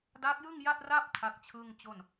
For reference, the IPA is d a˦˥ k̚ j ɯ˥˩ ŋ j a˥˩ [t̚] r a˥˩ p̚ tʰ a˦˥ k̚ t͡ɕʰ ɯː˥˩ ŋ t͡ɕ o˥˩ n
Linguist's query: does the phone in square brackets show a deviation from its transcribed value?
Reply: no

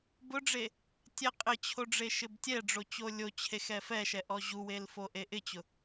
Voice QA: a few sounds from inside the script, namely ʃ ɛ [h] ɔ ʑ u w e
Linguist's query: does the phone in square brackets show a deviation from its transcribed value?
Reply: yes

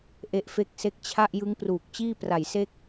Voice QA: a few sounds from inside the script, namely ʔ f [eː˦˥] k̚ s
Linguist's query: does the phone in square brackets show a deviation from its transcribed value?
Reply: yes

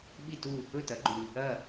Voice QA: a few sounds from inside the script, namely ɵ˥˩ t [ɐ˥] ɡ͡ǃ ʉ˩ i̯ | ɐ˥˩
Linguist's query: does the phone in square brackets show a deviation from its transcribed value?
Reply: yes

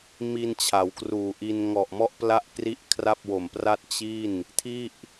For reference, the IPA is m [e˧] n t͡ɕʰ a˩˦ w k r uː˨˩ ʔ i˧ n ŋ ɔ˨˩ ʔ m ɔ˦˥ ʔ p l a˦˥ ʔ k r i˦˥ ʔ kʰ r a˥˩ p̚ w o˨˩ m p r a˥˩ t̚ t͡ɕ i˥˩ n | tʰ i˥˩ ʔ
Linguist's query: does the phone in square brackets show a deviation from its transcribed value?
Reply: yes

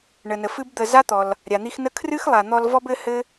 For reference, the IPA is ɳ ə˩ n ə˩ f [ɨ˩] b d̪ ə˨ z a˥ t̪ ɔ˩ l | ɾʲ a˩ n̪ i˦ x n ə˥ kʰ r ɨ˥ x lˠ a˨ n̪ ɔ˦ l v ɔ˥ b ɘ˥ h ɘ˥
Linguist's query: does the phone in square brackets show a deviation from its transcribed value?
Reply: yes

